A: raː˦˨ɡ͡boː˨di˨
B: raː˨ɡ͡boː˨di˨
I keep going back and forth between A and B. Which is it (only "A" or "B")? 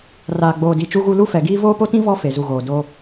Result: B